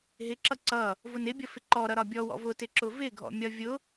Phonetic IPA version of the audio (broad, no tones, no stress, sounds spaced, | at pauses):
ɦ ɪ ǁ ʌ ǀ ʌ | v ʊ n ɪ bʲ ʌ f ɪ ǃ ɔ ɾ ʌ ɾ ɒ bʲ ɔ w ɔ̰ v ʊ t ɪ ǁ ʊ v ɪ ɡʱ ɔ̰ mʲ ɒ vʲ ʊ